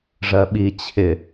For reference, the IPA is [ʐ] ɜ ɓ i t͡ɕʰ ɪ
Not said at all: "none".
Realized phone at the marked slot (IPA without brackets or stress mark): ʐ